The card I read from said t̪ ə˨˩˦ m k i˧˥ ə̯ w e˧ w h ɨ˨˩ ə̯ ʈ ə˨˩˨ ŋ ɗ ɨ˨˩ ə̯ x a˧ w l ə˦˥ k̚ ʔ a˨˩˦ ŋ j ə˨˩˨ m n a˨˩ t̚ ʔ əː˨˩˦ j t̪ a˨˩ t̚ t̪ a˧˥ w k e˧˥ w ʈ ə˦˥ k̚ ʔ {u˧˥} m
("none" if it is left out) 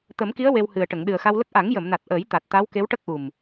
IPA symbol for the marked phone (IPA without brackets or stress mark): u˨˩